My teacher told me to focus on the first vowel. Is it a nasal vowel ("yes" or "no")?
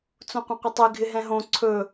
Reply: yes